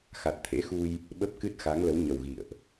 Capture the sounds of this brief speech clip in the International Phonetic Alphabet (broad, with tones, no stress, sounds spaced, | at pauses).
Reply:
x a˨˩ t̚ t̪ʰ ḛ˧˥ x u˧ j | ɓ ə˦˥ p̚ k ɨ˦˥ t̚ x a˨˦ ŋ l ə˨˦ w ɲ ə˨˩ w ɣ ḭ˧˨ ə̯ ʔ